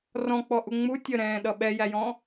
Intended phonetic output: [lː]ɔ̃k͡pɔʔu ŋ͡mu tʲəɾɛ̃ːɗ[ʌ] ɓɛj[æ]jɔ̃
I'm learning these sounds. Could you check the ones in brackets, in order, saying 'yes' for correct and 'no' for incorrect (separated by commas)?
no, yes, yes